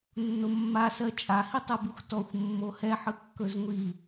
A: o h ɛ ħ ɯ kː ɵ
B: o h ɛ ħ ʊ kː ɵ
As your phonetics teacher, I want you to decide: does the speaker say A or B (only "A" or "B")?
A